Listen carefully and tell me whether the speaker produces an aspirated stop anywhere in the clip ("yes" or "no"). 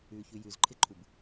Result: yes